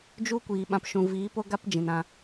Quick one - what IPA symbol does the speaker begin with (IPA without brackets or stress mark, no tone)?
d͡ʒ